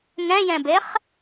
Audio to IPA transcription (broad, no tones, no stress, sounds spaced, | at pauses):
ŋ ɛ̃ j ɛ̃ b e χ